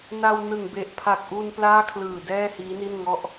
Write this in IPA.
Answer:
n a˧ w n ɯ˨˩ ŋ b e˨˩ ʔ pʰ a˨˩ k̚ ʔ u˧ n p l aː˥˩ kʰ l ɯː˨˩ d ɛː˥˩ h iː˦˥ n i˥˩ n ŋ ɔ˥˩ ʔ

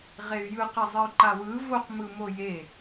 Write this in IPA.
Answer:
ʁ e y̯ j ɯ q e zˤ e y̯ ǃ a w ɯ v o q m ɯ m o j e

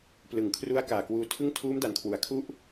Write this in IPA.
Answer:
p l ɯ˩˦ ŋ kʰ r u˦˥ a̯ k aː˨˩ k w uː˧ tʰ ɯ˥˩ ŋ tʰ uː˦˥ m d a˨˩ n kʰ w u˨˩ a̯ kʰ u˥˩ ʔ

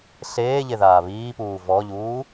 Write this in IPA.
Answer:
ɬ eː ʎ e ð aː β iː p uː v ɔ ʎ uː

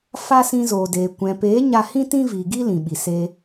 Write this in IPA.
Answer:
f a˦ s ĩ˧ z oː˨ d eː˨ kʷ ɛ̃˨ p eː˨˦ ɲ a˧ h ĩ˦ t ĩ˦ v iː˨ ɡ i˦ l ĩ˨ ɓ i˨ s e˧

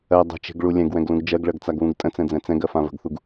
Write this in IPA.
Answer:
ɜ dˤ ə̤ t͡ʃ e̤ ɡ ɭ u lʲ ɛ̃ ɡ w ɛ̃ ɡ l ũ ɡ d͡ʒ ɜ ɡ ɭ ɜ ɡ t͡s a ɡ β ũ ɡ tʼ ə̃ t͡s ɛ̃ d͡z ɛ̃ t͡s ɛ̃ ɡ ɜ f ã v ə̤ ɡ θ u ɡ

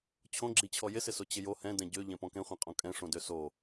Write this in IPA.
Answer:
t͡ɕʰ õ ɡ͡ǁ i t͡ɕʰ ɔ j ɪ s ɪ s o t͡ɕ ɪ j o h ɛ̃ d ɛ̃ ɟ ø ʎ ɛ̃ p ɔ̃ k ɛ̃ χʷ ɛ̃ qʼ õ kʼ ɛ̃ ʂ õ d ø s o

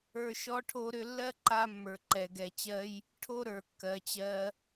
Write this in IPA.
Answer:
ə˞˨ ʃ ɔ˧ ʈʰ o˧ ɾ ʏ˧ lː ɜ˦ ǃ a˧ mː ə˞˨ ǃ ɛ˨ ɡ ɛ˨ t͡ɕ ɜ˦ j | ʈʰ o˦ ɾ ə˞˨ kː ɜ˨ t͡ɕ ɜ˧

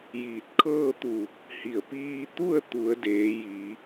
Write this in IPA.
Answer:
j iː˧˩ t̚ kʰ ɤː˥˨ t̪ u˧˩ | h i˧˩ ə̯ p iː˧ t̪ u˥˨ ə̯ t̪ u˩˧ ə̯ d eː˩˧ j iː˩˧

